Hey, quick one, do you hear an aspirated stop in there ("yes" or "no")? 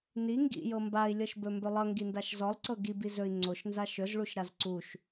no